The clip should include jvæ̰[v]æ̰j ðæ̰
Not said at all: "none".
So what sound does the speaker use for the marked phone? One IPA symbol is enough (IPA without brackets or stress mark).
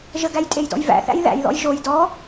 θ